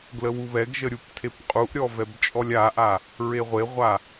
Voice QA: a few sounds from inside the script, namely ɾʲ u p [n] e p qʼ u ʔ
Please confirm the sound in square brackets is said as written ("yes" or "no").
no